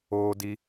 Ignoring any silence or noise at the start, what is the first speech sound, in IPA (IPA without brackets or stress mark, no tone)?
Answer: oː